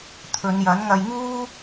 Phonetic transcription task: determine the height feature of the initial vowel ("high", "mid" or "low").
mid